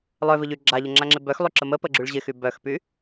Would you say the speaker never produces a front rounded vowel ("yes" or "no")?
no